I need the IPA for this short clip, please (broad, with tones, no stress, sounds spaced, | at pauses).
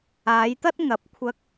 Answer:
aː˨˧ j t̪ ɐ˥ t̚ ŋ ɐ˨˥ p̚ kʷʰ ɐ˧ k̚